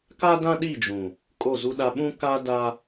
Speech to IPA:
ka˦dã˦ɗi˦˨d͡ʒũ˨ | kʼo˦˨zu˦ɗa˦ ɓũ˦ ka˦da˦

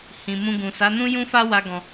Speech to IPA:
hĩ˨ mũ˧ɡũ˨ sa˨˦nũ˦jũ˦fa˦ wa˦ɡɔ̃˧

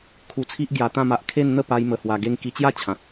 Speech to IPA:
kʰu˧t͡sʰi˦ʔ ɡja˧t̪ã˥˧ma˦ʔ kʰe˥˧nn̪ə˥˧pa˧j mə˧hwa˧ɡe˦ŋ ki˧t͡ɕja˥˧t͡ɕʰã˨t̚

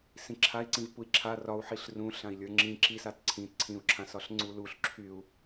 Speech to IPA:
sĩǁʰai̯ǀĩv pui̯ǁʰa rɒu̯ ħiɬrũ ɬãi̯lʲə˞ŋ͡ǁĩ ǁisat ǀʰĩt ǀʰĩu̯ǁʰã sɒɬŋ͡ǀuluɬ ǁʰyu̯

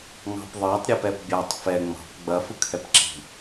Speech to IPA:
ŋɑ̤pðˤɑtˤ ɾʲɛpɛpbʲɑtˤ fɛ ŋ͡mɑ̤p ɡ͡bɐ fɯkʰɛpǁi̤

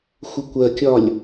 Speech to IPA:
xʷəkʷɜkʲɒlʲ

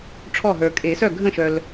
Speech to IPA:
ʈ͡ʂʰɔ˥˩ɦə˞˨ kʼe˨˩˦sœ˥˩ɡʱə̃˥˩ʃœ˨l

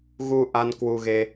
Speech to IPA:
ɣu˧ʔa˧n kwu˧ɣe˧

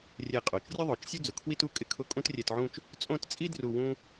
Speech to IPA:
rʲɛ˧˩qʼo˩˧t͡ʃrʲʊ˥ðˤo˩˧t͡ʃ sʲu˥d͡zʊ˩˧kʰwi˥tu˥˧ kʼɪ˧ kʰʊ˥˧kʼũ˥trʲɛ˧tʕũ˥˧t͡ʃ | t͡sʼõ˥˧tt͡sʼi˥ dru˥˧ wũ˥

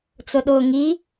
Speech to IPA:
t͡sʊɗʊːŋi

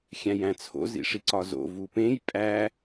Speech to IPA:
xʲæ̃jæ̃t͡sʰo̰ zḭʂiǀɒzo̰ vupẽj pʼæ

